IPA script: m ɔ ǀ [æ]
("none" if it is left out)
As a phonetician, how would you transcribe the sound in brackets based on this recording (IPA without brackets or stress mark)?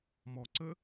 ə